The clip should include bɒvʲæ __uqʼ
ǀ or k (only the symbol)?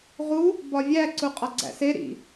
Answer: ǀ